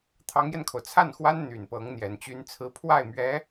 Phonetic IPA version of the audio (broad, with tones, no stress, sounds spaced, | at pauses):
t̪ʰ ɑ˧˥ ŋ j ɛ˧ n kʰ o˩ ʊ̯ t͡sʰ a˥˩ n x w a˥ n n̪ y˨˩ n p ɤ˧˥ ŋ n̪ j ɛ˨˩ n t͡ɕ y˥ n t͡sʰ ɹ̩˥ pʰ w a˥˩ ɪ̯ m ɥ ɛ˧˥